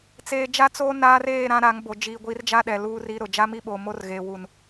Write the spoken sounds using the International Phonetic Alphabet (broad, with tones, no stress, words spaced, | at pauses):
t͡seː˨d͡ʒa˦t͡soː˦ naː˦reː˦˨ ɾã˦ɾa˨˦ŋbo˨ d͡ʒiː˨ɡʷi˨˦rd͡ʒa˦ ɗɛ˨luː˦ri˦ɾʊ˨ d͡ʒa˦mi˦ɓoː˨mo˦r ɣe˨ wu˨n